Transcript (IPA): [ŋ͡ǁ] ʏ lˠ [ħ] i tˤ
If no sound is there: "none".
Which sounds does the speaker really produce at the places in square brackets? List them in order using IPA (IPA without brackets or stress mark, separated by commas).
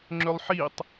ŋ͡ǁ, ħ